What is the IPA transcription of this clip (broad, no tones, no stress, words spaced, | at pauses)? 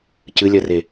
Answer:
cɨlʲɜre